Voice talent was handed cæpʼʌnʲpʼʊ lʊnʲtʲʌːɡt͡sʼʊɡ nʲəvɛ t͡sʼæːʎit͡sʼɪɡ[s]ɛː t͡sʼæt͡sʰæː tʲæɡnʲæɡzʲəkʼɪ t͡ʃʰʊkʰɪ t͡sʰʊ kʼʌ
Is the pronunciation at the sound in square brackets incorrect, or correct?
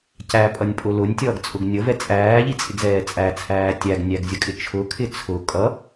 incorrect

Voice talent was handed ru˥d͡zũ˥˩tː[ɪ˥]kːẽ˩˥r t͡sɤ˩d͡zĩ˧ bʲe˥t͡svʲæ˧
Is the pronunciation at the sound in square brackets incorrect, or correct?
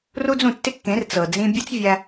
correct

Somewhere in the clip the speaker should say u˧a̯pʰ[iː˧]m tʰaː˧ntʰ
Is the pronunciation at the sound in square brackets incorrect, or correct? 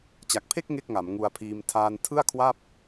correct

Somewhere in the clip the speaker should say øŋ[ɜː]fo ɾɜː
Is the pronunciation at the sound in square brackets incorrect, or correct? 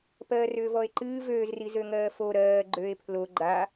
correct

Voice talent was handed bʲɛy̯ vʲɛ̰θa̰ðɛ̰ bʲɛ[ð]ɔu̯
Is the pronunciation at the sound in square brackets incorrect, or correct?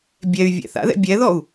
correct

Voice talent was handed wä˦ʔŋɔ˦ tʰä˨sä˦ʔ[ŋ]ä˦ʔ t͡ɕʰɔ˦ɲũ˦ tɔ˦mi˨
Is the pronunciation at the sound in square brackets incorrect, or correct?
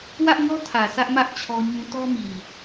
incorrect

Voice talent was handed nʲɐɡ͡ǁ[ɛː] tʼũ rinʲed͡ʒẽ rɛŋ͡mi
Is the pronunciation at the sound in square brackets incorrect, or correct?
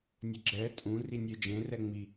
correct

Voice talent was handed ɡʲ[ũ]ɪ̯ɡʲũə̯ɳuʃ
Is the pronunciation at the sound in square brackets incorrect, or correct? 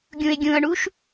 correct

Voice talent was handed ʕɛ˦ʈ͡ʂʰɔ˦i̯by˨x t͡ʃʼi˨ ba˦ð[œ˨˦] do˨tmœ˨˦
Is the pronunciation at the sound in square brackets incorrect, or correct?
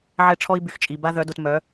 correct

